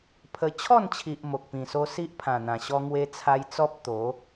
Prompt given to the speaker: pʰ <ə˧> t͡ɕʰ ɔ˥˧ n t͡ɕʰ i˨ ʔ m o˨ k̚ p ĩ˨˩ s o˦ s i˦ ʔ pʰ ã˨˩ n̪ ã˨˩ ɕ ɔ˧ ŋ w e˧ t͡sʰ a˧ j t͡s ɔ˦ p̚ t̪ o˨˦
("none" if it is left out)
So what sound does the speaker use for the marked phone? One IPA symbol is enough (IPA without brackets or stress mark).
ə˧